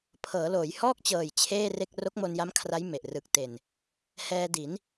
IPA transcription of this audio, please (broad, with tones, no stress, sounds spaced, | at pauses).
pʰ ɤː˩˦ l oː˩˦ j h ɔː˥˩ k̚ t͡ɕ ɤː˨˩ j t͡ɕʰ eː˥˩ r e˥˩ k̚ r o˦˥ k̚ m o˧ n j a˦˥ m kʰ r a˦˥ j m e˨˩ ʔ r ɯ˨˩ k̚ t e˨˩ n | h ɛː˧ d i˩˦ n